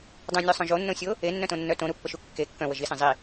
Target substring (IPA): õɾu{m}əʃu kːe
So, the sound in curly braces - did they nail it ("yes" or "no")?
no